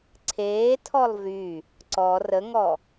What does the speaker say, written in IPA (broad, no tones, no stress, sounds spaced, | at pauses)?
ǀʰ eː tʰ ɔ lˠ v y | ǀ ɔ r ə ŋ ɔ